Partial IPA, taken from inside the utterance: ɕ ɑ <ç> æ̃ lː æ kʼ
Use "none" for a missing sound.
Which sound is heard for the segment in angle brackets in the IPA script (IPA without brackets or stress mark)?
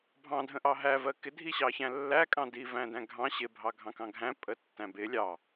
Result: ç